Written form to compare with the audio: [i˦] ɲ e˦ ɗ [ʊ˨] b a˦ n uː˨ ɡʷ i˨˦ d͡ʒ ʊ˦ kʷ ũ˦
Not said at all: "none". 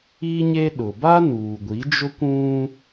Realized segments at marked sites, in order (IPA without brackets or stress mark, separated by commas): i˦, ʊ˨